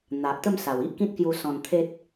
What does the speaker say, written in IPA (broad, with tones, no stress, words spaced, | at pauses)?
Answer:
n̪a˨ʔt̪ə˥˧m sa˨˩wi˦ʔkĩ˦t̚kju˧ sɔ̃˧nt̪ʰe˦t̚